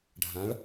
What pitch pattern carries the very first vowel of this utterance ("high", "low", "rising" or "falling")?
rising